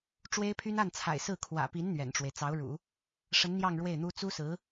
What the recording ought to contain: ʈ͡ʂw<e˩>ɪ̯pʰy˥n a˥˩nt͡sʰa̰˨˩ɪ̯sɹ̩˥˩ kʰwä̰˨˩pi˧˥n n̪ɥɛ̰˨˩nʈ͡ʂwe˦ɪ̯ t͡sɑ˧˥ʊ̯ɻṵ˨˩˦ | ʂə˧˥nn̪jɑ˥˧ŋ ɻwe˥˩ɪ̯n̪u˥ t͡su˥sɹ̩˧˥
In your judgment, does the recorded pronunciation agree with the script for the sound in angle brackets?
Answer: no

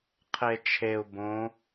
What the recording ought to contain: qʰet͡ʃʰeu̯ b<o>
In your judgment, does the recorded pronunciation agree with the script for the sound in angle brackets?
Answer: no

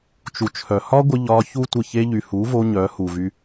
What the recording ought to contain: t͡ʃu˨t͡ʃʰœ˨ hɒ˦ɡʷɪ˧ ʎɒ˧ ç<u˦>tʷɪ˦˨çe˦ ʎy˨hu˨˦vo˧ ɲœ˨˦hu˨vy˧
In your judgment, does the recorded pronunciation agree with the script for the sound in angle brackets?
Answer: yes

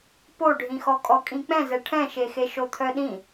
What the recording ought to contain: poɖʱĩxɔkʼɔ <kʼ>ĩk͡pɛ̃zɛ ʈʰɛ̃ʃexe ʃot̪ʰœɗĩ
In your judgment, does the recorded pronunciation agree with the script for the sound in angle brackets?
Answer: yes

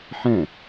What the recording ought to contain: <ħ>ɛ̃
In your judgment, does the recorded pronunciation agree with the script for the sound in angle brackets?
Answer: yes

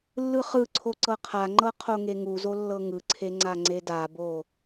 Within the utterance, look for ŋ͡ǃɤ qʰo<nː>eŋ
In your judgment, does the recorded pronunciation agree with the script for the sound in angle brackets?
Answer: no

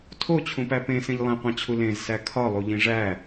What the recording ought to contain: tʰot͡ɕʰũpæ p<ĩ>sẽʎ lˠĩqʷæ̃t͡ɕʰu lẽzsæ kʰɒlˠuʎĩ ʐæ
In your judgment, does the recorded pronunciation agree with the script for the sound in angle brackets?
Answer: no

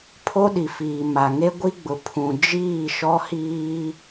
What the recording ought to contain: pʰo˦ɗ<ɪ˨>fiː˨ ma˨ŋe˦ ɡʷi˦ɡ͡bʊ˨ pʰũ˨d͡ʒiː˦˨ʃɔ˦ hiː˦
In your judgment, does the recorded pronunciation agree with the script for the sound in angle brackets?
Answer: no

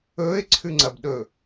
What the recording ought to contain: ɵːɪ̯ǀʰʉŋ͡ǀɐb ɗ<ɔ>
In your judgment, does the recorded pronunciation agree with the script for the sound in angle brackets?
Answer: no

